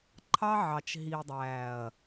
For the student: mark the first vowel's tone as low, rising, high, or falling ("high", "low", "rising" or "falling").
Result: high